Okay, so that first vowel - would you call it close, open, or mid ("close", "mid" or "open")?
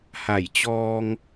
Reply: open